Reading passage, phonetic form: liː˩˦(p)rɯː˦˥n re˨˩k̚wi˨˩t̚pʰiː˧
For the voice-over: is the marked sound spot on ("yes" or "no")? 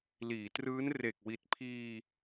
no